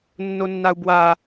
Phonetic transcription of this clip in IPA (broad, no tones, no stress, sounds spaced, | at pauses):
nː o nː a u̯ b w a